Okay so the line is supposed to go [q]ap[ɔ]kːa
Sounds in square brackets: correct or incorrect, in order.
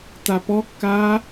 incorrect, correct

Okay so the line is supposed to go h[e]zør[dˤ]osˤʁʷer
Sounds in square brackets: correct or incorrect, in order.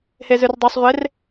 correct, correct

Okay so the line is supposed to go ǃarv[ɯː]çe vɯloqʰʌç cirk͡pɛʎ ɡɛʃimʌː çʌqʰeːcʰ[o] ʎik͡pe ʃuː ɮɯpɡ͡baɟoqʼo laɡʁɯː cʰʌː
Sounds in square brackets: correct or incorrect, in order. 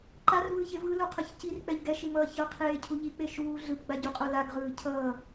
correct, incorrect

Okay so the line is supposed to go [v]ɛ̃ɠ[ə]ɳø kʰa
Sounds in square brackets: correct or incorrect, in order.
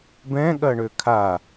incorrect, incorrect

